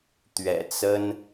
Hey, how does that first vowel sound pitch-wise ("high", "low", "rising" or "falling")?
low